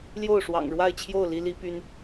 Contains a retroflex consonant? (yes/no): yes